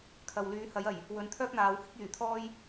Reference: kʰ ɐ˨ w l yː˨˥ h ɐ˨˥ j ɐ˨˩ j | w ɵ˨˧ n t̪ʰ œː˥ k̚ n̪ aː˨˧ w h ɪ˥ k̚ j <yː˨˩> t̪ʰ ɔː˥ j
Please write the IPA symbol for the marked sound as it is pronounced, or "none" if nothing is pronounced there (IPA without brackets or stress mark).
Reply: yː˨˩